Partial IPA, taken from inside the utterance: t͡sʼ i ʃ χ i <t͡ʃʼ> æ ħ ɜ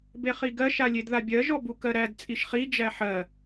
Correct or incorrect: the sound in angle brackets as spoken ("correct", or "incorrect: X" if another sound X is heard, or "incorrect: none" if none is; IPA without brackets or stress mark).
incorrect: d͡ʒ